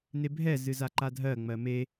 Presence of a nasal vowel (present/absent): absent